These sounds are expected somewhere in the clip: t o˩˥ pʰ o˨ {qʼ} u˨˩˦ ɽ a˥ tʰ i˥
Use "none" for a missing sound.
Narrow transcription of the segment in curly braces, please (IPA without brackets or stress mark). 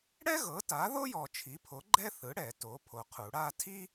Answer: qʰ